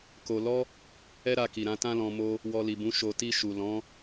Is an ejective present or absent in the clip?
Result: absent